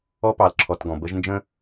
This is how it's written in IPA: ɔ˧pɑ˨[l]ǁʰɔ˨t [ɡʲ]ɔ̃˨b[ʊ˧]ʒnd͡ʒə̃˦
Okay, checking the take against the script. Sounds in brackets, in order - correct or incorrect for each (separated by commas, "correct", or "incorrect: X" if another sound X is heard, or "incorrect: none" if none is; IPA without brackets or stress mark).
correct, incorrect: ɡ, incorrect: ə˧